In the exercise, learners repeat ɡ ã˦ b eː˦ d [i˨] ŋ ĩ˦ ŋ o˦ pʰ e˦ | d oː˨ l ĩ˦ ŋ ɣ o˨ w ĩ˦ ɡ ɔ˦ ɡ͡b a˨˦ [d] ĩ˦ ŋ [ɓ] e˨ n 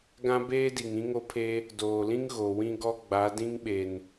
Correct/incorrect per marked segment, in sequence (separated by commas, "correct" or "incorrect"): correct, correct, correct